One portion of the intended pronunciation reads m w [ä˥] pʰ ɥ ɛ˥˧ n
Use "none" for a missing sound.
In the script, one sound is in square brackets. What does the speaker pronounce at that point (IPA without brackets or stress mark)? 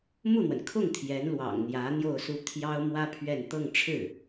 ä˥